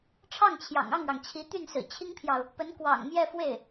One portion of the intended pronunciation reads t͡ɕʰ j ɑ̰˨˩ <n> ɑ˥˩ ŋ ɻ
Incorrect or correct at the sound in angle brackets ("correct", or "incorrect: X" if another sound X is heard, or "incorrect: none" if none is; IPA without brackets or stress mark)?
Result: incorrect: ŋ